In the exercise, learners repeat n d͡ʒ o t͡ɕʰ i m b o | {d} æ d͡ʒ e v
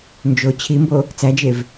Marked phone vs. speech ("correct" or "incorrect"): incorrect